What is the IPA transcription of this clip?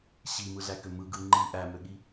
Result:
ɕ i m ɯ ɮ æ k ø m ɯ ɡ ɯ ŋ͡ǃ i ʔ æ m ø ɠ i

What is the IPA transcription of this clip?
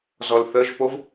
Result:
z ɔ l θ ə ʒ p o v

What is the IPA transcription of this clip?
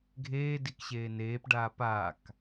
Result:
ɡʱ eː d i k ɕ eː n eː p ɖ aː p aː k

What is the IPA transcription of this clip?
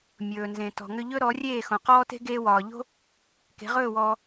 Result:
mʲ ɵː˩ n z ẽ˩ t ɔ̤˩ ŋ ʏ˧ ʎ ɵ˥ ɾ ɔ˩˥ rʲ eː˥˩ x õ˩ q ɔː˥ t e̤˥ ɡ eː˧ w ɒː˩ ʎ o̤˥ | k e̤˩˥ ʁ ɵː˥˩ w ɔː˧

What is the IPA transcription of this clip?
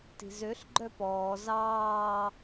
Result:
t i̤ z ø ɬ ɡ͡ǃ œ p ɔː z ɑː

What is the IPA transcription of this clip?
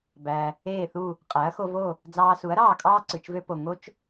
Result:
b æ˩ | eː˥˩ θ u˥˩ | qʼ æ˩˥ ɐ̯ x o˧ v o˥˩ | d͡z ɑː˧ s u˩˥ ɐ̯ ɾ ɑː˥˩ kʼ ɑː˥ ǀ ɯ˩ t͡ʃ v ø˥ p o˩ ŋ o˥ t͡ʃ

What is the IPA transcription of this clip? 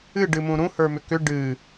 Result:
ɨ ɖ ɨ m ũ ɾ ũ h ə˞ m ʏ k ʏ ɖ ɨ

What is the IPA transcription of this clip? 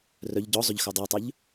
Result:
r œ ʎ ɟ ɔ zˤ ʏ ʎ x œ dˤ e tˤ œ ʎ

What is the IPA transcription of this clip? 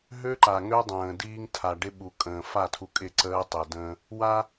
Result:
ɦ ø˦ ǃ a˨ ŋ ø˦ dˤ ə̃ː˨ d iː˦ ŋ tʰ a˨ ɖ ɪ˦ ɓ u˨ kʼ ə̃ː˨ f a˦˨ tʰ u˨ kʼ ɪ˦˨ ǀ əː˦ tˤ e˨ d ə̃ː˦ | w a˦

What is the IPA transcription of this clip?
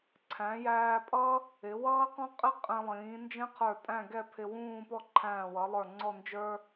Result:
ǀʰ æ̃˩˧ j æː˧ pʼ ʌ˥ | ɪ˩˧ w ʌː˥ q ɔ̃˥ qʼ ɪ˥ qʼ ɛ̃˧ lˠ ĩː˩˧ n d͡ʒ ɛ̃˥ qʰ ə˞˧˩ tʼ æ̃˥˧ ɡ ɛ˥˧ pʰ ɪ˧ w ũː˥˧ p ɔ˥˧ ǃʰ æ̃ː˧˩ w ʌ˩˧ lˠ ə˞˧˩ ŋ͡ǀ ɔ˥˧ n d͡ʒ ə˞˥

